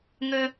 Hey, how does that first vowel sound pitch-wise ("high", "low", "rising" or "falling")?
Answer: high